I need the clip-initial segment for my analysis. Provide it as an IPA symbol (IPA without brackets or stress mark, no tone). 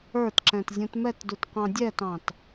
ə˞